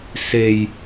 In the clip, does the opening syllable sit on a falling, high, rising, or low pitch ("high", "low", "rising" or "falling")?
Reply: low